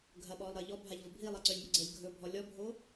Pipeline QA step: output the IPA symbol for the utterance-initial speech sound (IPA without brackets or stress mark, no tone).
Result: ɡʱ